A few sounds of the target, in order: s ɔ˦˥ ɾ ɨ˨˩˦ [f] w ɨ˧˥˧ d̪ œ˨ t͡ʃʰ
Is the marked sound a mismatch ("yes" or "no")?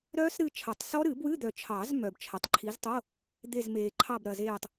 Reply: yes